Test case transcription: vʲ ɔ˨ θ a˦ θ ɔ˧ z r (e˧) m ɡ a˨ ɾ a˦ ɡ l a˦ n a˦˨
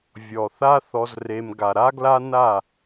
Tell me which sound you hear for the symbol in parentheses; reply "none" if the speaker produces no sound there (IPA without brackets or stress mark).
e˧